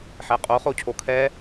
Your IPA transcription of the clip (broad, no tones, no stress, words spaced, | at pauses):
ħɛqʼo χocʰokʰɛ